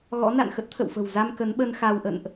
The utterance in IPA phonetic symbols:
ɣɔ̰˧˥na̰˧˨n xə˦˥t̚t̪ʰə̰˧˨wfə̤˨˩w za˧m kə˨˦nɓə˧n xa˧wʔə̰˧˨nʔ

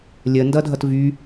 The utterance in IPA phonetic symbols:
lʲə ndʌdʱʌtvy

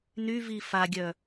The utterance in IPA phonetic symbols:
nyvi faɡʲœ

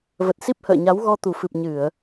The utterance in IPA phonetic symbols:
və˨˩t̚si˦˥p̚hə̰ː˧˨ɲa˨˦w ɣɔ˧t̪u˨˩fɨ˨˩p̚ ɲɨ˧˩˨ə̯

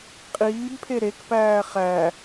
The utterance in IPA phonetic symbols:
qʼiːbpʰe ɾekpæː χæ

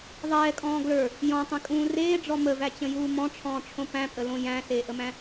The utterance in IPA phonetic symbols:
ðˤɛːkʼɔ̃ː ɡlə˞ | jɔ̃tˤẽkʼũː reːɖ͡ʐɔ məvæt͡ɕə̃juː mɔ̃ʈ͡ʂʰɔ̃ːʈ͡ʂʰõ pæ̃pʼəlõ jæ̃seːʔəmæ̃

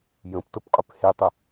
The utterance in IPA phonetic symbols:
jə̃ptəpqʼʏp hetˤʊ

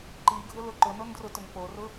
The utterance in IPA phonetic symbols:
ǃiɡʱʊlʊ ǃʊnondrʊtʊŋ porʊ

